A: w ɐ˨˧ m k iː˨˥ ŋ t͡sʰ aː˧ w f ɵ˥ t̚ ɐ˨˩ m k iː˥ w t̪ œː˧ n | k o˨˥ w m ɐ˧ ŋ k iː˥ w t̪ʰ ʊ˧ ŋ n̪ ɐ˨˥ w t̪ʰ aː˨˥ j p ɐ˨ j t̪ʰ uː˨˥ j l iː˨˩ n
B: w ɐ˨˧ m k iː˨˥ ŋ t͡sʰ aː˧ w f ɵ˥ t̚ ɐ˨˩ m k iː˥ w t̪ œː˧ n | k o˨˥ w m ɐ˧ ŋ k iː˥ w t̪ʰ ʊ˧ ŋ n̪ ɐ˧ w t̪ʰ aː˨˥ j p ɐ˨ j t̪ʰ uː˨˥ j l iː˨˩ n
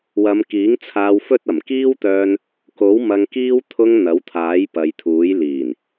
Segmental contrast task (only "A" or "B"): A